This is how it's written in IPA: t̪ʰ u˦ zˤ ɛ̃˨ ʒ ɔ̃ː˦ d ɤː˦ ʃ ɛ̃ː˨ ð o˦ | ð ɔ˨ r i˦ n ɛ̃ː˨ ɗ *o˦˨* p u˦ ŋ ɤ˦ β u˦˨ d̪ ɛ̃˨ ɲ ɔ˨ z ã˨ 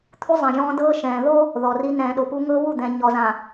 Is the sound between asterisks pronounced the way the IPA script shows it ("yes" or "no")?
no